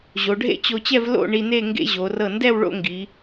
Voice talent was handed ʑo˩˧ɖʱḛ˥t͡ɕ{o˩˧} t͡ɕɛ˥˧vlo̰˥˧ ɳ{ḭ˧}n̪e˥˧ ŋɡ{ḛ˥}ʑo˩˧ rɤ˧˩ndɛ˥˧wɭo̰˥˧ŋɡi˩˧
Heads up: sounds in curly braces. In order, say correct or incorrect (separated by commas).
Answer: incorrect, incorrect, correct